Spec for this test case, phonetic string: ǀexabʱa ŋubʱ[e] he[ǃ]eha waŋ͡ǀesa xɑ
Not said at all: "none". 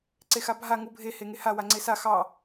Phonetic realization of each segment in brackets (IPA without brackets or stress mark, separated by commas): e, ŋ